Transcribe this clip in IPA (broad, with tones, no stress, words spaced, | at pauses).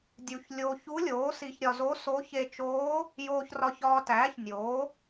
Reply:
dʲu˧ç lʲo˧ çu˧˥lʲoː˩˥si˧ç ɾʲɒ˧zo˧˥so˧˥ çe˧t͡ʃoː˧˥ | joː˧çrɒ˧çɒː˧tæː˩˥ç nʲo˩˥